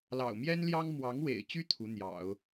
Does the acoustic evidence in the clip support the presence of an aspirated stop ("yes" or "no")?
yes